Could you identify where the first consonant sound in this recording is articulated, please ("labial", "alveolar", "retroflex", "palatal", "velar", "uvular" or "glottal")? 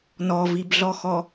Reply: alveolar